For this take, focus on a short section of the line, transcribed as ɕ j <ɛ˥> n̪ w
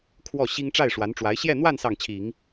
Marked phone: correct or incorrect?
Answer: incorrect